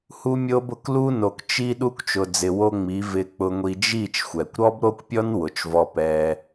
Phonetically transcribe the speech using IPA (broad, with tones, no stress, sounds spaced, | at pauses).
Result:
h u˧ mʲ o˧ b ʊ˨ k l u˧ n o˨ k t͡ʃ i˧ ɗ u˧ k t͡ʃ ʊ˨ d͡z ɪ˨ w o˧ ŋ͡m i˨˦ v ɪ˧ k͡p ʊ˧ ŋʷ i˧ d͡ʒ i˦˨ t͡ʃ xʷ ɛ˨ kʷ ɾ ɔ˦ b ɾ o˦ kʷ pʲ ɔ˦ n w ʊ˨ t͡ʃ v ɔ˧ p ɛ˧